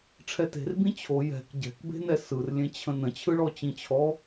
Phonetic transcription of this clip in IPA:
ʈ͡ʂʰɛte̤rbĩ t͡ɕʰo jɛ̤k ɟɛ̤kbe̤nɛ sɯrlʲẽt͡ɕʰə̃ nə̃t͡ɕʰɯɭɔ t͡ɕĩt͡ɕʰɔ

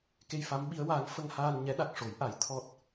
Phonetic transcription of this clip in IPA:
ke˧jfa˧˥mɓi˧˥ə̯waː˧˥ŋ fə˧ŋhaː˧nɲɛ˧˥ ɗa˨˩k̚ʂo˨˩˦jʔa˨˩˦j t̪ʰɔ˦˥t̚

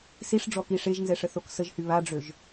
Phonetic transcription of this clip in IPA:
siʂ ɖ͡ʐɔkiʂeʒnzɛ ʂəθoksəʒhy βaɖ͡ʐøʒ

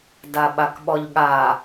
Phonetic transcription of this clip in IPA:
daɓakɓɔʎɠa

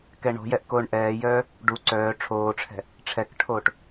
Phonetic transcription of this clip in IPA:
kɛɳo̤jɛʔ koːɳʔɛːjœː | ɖu ǀœː ʈ͡ʂʰoːʈ͡ʂʰɛ̤ | ʈ͡ʂʰɛkʈʰoːʈ

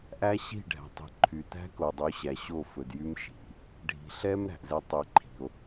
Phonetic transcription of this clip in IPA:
ʔæ˦ɕi̤˦˨ɖʱæ̤˨tˤi̤˨ ǃʰy˨ tæ̤˦ko˨dˤʉ˨˦ɕæ˨ ɕo˦˨fɵ˨djy˦m ʃi̤˨ | ɖʱi̤˨ɬɛ˦m ɾæ̤˨ʔzɛ˦ tˤi˨ǃʰi̤˨o̯

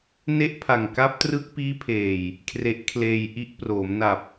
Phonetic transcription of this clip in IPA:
ne˥˩ʔpʰa˨˩ŋka˦˥p̚trɯ˦˥k̚ piː˦˥pʰeː˨˩j | kʰre˦˥ʔkʰleː˧j ʔi˦˥ʔproː˩˦m na˨˩p̚

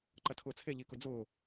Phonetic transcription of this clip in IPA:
ǃɐtʰʊːt͡sʰe ʎikʊd͡zʊː

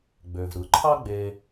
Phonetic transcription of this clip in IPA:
ɡ͡bø˩v ɾɯ˩ǃʰɑ˦ ɡ͡beː˨

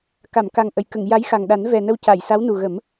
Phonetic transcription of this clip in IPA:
ka˨˩˨mka˨˩ŋʔə˨˩˨jkə˨˩˨ŋ ja˧˥jxa˨˩ŋ ɗa˨˩˦nvɛ˨˩ nə˧wca˨˩˨jsa˧˥w nu˨˩ɣə˨˩˦m

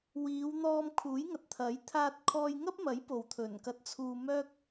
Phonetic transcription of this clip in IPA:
wiː˨˧wn̪ɔː˧m kʰuː˨˥jŋɐ˨t̚t̪ʰɐ˨˥j t̪ʰaː˧t̚kʰɔː˧jŋɐ˥p̚mɐ˨˥j po˨wt̪ʰɵ˨˩nkɐ˧t̚ t͡sʰuː˧ mœː˥k̚

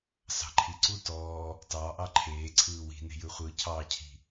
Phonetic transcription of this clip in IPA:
sɑ̤ǃʰiǀu tɔː | tɑʔɑ ǃʰeː ǀʰɯːwi̤ ne̤jɯχʷɯ cʰɑcʰi̤

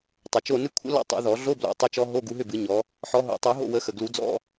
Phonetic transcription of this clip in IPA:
tˤə˨˩t͡ʃo˥˨ nɨ˦˥kʷʰə̰˦˥lɔ̰˥˨ tˤṵ˨˩˦ðɔ˨˩˦ ɮo˧˥˧blo̰˨˩˦ tˤʏ˦˥t͡ʃɔ˦˥ ɦo˧˥˧ɡu˨˦ɦʏ˥˨bɨ˨˩˦ ɲɔ˨˦ | ħɔ˨˦ɦo̰˨˩˦tˤu˨˩˦ ɦo̰˥˨wə˨˦ xə˨˩ɡlu˨˩˦d͡zɔ̰˧˥˧

